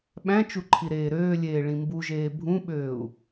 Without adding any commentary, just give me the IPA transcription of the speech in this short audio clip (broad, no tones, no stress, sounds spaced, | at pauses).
ɓ æ̃ t͡ʃ u ǃʰ i ɾ eː ɾ øː lʲ eː ɭ ĩ m b u ʒ eː bʱ ũ ɓ øː u̯